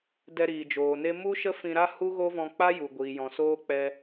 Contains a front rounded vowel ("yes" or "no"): no